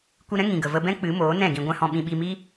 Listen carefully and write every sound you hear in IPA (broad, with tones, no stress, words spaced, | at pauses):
kʷi˧ɾɛ̃˦ ŋĩ˨ɡə˨ və˧bɛ̃˦ k͡pɨ˨˦moː˨˦nɛ̃˦˨ ɡĩ˧ɡʷɛ̃˦hɔ̃˧ ɓĩ˧ɓi˧mi˦